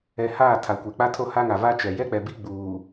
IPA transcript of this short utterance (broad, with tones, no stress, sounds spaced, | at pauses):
ɛ˨ h aː˦˨ tʰ a˨ kʷ e˨ k͡p a˦ tʰ o˦ h a˦ ŋ a˨ v a˦ t͡ʃ ɛ˨ j ɛ˦ k͡p ɛ˨ b i˦ ɡ͡b uː˨